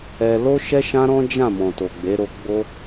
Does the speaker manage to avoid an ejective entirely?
yes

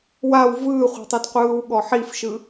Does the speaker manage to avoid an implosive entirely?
no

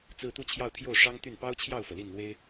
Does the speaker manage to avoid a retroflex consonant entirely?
no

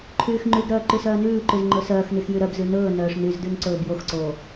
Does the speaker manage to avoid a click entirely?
no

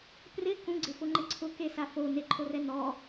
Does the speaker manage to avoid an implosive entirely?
yes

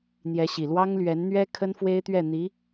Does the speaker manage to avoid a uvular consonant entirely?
yes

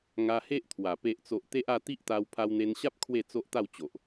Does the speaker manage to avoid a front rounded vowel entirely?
yes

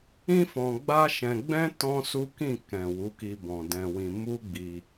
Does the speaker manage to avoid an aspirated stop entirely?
yes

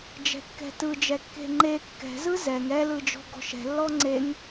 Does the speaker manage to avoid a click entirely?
no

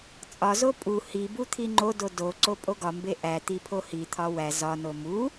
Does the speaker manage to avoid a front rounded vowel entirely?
yes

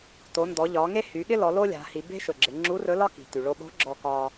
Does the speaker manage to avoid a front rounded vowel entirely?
no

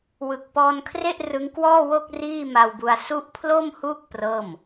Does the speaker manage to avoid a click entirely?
yes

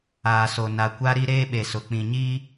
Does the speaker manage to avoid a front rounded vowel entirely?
yes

